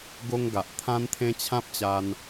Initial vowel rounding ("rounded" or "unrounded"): rounded